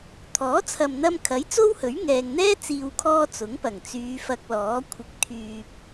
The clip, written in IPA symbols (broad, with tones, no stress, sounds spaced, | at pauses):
t̪ʰ ɔː˨˥ t͡sʰ ɐ˨ m n̪ ɐ˧ m kʰ ɐ˨˥ j t͡s o˥ w h ɵ˨˥ ɥ ŋ ɛː˨ ŋ n̪ ɛː˥ t͡s iː˨ w kʰ ɔː˧ t͡s ʊ˨˥ ŋ p ɐ˨˩ ŋ t͡s yː˨˧ f ɐ˧ k̚ l ɔː˨˥ kʷʰ ɪ˧ k̚ t̪ʰ yː˨ p̚